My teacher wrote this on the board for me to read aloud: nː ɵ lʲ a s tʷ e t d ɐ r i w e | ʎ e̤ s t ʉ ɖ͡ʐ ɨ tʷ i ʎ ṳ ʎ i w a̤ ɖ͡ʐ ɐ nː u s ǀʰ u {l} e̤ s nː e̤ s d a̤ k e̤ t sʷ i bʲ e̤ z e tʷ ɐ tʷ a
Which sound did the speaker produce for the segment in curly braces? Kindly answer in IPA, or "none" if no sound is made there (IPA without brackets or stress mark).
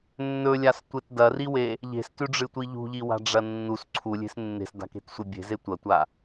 lʲ